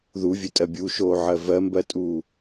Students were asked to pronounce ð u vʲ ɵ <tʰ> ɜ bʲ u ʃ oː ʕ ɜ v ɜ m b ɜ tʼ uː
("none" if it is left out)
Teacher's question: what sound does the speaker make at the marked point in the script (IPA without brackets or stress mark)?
tʼ